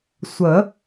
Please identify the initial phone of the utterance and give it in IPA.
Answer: sʷ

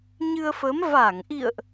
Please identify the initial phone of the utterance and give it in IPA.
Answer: ɲ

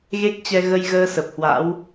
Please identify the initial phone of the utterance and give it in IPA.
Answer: ɣ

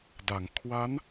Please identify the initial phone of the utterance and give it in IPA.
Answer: d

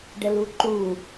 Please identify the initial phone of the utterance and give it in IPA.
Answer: ɖ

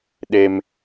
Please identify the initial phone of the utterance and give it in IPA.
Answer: ɗ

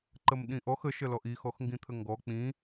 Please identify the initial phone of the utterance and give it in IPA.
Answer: ǃ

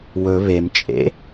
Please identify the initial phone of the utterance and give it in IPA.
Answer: w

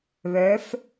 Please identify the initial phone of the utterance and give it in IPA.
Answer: β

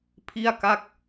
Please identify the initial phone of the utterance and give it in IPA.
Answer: pʰ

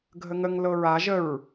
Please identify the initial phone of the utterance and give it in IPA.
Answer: ɡʱ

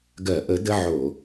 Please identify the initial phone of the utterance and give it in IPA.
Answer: ɡ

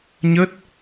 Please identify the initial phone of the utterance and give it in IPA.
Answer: ɲ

